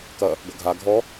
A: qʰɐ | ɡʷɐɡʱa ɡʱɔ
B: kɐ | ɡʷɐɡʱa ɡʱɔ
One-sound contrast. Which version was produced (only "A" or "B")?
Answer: B